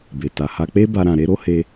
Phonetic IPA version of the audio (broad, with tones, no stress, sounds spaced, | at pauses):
b e˨ t a˨ h a˧ k͡p e˦ b a˦ ɾ ã˧ ɾ e˦ ɾ o˦ h e˧